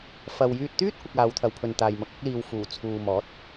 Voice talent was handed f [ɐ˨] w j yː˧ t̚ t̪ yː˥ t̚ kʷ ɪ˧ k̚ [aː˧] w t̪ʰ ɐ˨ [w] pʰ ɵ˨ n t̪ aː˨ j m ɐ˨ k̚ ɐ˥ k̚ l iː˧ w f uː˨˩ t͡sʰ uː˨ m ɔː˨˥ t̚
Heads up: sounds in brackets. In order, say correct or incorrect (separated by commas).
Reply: correct, incorrect, correct